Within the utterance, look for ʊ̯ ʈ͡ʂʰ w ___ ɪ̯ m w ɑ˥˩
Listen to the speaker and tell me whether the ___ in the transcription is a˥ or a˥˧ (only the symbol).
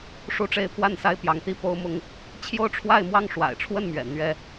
a˥˧